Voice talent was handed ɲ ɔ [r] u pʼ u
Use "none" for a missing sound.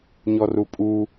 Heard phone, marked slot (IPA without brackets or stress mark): r